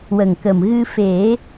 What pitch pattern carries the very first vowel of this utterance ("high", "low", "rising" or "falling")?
low